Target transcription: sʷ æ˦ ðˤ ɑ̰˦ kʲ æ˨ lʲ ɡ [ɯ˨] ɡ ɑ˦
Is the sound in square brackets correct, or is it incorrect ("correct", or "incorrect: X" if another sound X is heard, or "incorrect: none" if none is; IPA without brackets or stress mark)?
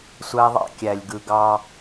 correct